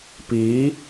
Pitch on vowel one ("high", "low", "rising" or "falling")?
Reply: rising